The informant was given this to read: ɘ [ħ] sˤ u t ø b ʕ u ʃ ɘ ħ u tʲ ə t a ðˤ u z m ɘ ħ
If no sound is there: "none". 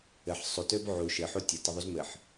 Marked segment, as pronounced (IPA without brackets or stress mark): ħ